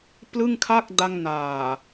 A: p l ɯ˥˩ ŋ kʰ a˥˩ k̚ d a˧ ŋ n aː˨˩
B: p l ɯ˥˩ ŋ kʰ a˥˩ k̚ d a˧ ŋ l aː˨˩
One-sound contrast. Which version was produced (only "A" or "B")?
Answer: A